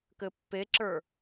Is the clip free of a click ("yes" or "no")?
no